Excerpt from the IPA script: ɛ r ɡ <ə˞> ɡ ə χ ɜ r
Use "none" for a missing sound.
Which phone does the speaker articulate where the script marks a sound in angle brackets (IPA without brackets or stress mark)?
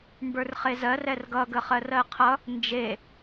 ʌ